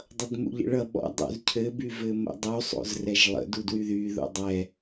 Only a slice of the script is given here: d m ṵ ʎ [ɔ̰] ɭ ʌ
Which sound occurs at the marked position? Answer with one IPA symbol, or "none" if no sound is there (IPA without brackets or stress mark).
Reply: ə̰